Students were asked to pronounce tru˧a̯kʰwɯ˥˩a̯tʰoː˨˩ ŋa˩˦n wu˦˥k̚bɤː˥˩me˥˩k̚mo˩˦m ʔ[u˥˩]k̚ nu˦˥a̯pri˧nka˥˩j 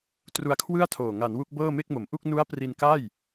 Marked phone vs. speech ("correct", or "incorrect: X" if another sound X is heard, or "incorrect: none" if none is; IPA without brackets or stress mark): correct